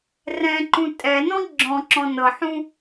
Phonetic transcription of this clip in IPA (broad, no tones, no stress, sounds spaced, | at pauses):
r ɛ̃ ǃ ũ tʼ ɛ n ɔ̃ ɡ͡ǁ ɔ̃ ǁ ɔ̃ n ɤ ħ ũ